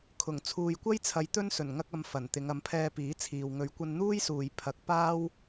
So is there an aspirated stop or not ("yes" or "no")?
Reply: yes